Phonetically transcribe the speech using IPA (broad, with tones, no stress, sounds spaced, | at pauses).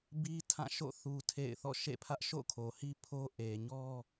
b i˦ tʰ ã˦˨ ʃ o̰˦˨ θ u˦ tʰ ḛ˦˨ ɪ̯ θ ɔ̰˦˨ ʃ ḛ˦˨ pʰ ä˦ ʔ ʃ o̰˦˨ kʰ o˨ h i˦ pʰ o˦ ʔ e˨ ɲ ɔ˦